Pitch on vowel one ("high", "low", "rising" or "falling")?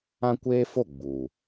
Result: high